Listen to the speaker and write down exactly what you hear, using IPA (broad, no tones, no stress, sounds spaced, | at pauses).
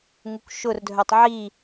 ŋ u k ʃ ʊ r dʱ œ tˤ ʕ i